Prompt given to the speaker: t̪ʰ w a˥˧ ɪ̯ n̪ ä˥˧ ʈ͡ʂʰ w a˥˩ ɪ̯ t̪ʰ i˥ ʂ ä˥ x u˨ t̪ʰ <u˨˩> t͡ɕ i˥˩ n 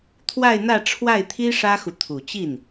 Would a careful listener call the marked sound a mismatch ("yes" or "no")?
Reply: no